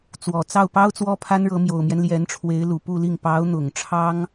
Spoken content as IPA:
t͡s w ɔ˨˩ t͡s ɑ˥˩ ʊ̯ p ɑ˥ ʊ̯ t͡s w ɔ˥ pʰ a˥ n ɻ ɤ˧˥ m j o˨˩ ʊ̯ m j ɛ˦ n l j ɛ˧˥ n ʈ͡ʂʰ w e˧˥ ɪ̯ l u˨˩ p u˥˧ l i˥˩ ŋ p ɑ˧˥ ʊ̯ n̪ ʊ˨˩ ŋ ʈ͡ʂʰ ɑ˥ ŋ

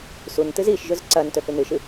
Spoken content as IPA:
s u n t ɨ z i ʃ ʒ ɵ z ǀ ɐ n t ɵ θ ʉ n ɨ ʃ ɨ

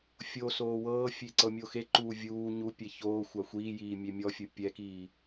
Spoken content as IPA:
fʲ o s oː w ɤː fʲ e ǀ ɤ mʲ o x e ǃ uː vʲ uː ɲ u pʲ ɛ ç oː xʷ a xʷ iː j iː mʲ e mʲ ɔ fʲ ɯ pʲ ɛ k iː

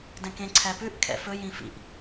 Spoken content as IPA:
d ɛ̃ k ẽ ǀʰ æ p ʉ ʔ kʰ ɛ̰ f ɵ j ĩ f ḭ ʔ

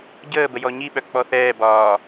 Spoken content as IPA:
ɟ əː b ə j ɔ ɲ i ɓ œ k͡p ɔ θ ɛː b ɒː

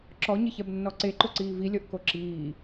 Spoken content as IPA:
ǁ ɔ ɲ ɪ ç ɛ b nː ɔ ǀ e ǃ ʊ ǀ iː v i lʲ ɔ ʔ k o ǁ iː

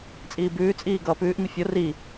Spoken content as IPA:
t͡sʼ iː b ʉː t͡sʼ iː ɡ ʌː p ʉː ʔ m i fʲ o r i

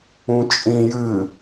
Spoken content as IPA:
ũ t͡ʃʼ ĩ j ɨ

